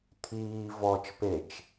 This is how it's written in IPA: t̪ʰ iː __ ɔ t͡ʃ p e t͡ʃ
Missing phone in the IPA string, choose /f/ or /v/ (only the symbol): v